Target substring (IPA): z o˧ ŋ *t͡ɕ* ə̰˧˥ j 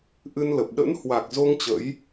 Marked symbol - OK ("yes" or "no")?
yes